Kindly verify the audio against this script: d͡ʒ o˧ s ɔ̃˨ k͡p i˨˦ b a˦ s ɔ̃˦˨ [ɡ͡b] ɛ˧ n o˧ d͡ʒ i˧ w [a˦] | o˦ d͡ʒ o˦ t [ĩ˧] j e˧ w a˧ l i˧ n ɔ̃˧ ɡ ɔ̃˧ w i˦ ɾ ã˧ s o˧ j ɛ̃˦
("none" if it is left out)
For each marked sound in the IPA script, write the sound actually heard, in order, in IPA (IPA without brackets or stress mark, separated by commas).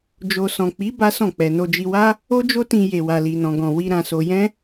k͡p, a˦, ĩ˧